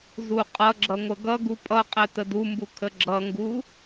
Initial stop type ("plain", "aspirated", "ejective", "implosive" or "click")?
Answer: ejective